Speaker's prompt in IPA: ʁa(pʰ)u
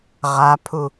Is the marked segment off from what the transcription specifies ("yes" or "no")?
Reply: no